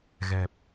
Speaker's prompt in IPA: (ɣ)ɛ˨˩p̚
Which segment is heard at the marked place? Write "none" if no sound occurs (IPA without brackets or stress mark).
ɣ